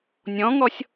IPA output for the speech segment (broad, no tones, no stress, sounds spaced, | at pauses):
nʲ ɔ̃ ŋ ɔ sʲ